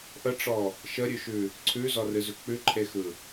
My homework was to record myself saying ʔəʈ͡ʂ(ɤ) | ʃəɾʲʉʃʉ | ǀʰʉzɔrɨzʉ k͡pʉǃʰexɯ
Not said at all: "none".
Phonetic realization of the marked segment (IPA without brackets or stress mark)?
ɔ